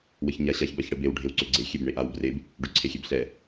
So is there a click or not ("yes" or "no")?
yes